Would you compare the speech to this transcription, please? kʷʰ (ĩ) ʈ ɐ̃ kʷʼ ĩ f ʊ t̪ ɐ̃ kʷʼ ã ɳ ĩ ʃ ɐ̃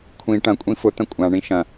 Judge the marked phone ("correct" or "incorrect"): correct